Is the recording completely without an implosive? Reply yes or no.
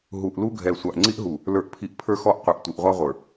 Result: yes